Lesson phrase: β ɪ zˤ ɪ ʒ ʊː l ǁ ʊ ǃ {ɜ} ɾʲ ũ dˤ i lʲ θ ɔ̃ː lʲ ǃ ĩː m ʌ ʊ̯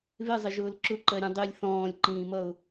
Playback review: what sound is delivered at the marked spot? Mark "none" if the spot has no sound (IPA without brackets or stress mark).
ɜ